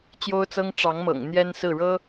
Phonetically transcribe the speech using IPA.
t͡ɕjo˥ʊ̯t͡sɤ˥ŋ ʈ͡ʂɑ˧˥ŋmɤ̰˨˩ŋ n̪jɛ˥nsɹ̩˥˩ɻɤ˥

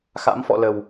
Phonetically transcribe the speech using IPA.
xa̰˧˥mfɔ̰˧˨lə˨˩w

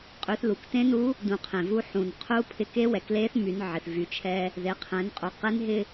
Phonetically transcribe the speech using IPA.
qʼy˩˧θlu˩k tẽ˧˥nu˧˥ | dũ˩˧qʰẽ˩vu˧ ħũ˩nqʰu˧˥pʰɪ˧ ke˧˥wɛ˩kle˧˥θ my˩˧nʕɪ˩θ vy˩˧ t͡ʃʰɛ˧ | ðe˩˧qʰɛ̃˩˧nqʼu˩˧qe˧˥n ɦɪ˥

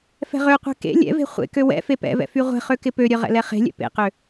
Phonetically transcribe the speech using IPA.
fɛ̤ʁøqʷɛ̤ kḛ lʲɛ̰ve̤ χʷḛkø wɛ̰fe pɛ̰vɛ̰ fyʁʷɛ̤χø kɪpøɾʲœ ʁɛ̰lɛχe̤lʲɛ̰ pḛqø

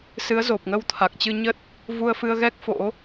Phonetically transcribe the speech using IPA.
sɨ˨˦ə̯zo˨˩p̚ŋə˧w t̪ʰa˨˩k̚t͡ɕɨ˧ɲə˦˥t̚ | vu˧ə̯fɨ˧ə̯ɣɛ˦˥k̚ fo̰˧˥

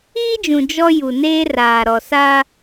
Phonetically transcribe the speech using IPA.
iː˦d͡ʒũ˨ d͡ʒɔ˦ ju˨neː˦raː˨ ɾɔ˨sa˦

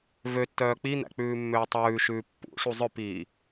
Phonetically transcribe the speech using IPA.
vøtːœː k͡pin̪æ̰ k͡pʉːmːøːtˤʉːʃʉː pːṵʂu zˤœpiː

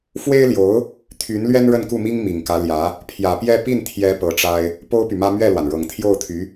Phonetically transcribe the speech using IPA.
fwe˥ɪ̯ljo˧˥ʊ̯ | t̪ʰy˧˥n lɥɛ˥nɻə˥˧nku˥˩mi˥ŋ mi˨˩ŋkä˧˥ljä˧˥ | pʰjä˨˩pjɛ˥˧ pi˥˩nt̪ʰjɛ˧˥ pɤ˧˥ʈ͡ʂa˥ɪ̯ | po˥ʊ̯py˨mä˥ mɥɛ˥˩lwa˩n ɻɤ˨˩ŋt̪ʰjo˥˩ʊ̯t̪ʰy˧˥

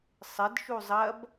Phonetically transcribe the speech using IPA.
sˤɪd ʃuzˤɐb

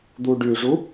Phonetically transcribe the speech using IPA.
d̪uɖyʐu

